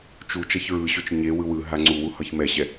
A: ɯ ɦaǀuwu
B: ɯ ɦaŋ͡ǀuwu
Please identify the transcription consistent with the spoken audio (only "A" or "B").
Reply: B